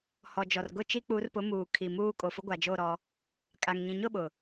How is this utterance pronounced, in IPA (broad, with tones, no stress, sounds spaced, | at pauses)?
h ɔ˨ d͡ʒ ɔ˨ r ɡ ʊ˦˨ t͡ʃ i˦ k͡p u˨˦ r p ʊ˨˦ m uː˨ kʰ i˨ m uː˦ kʼ o˨ f ʊ˦ ɡʷ a˨ d͡ʒ o˦˨ ɾ ɔ˦ | kʼ a˨ ŋ ɲ ĩ˨ ɲ ʊ˦˨ ɓ ʊ˨